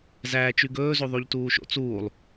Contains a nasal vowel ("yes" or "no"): no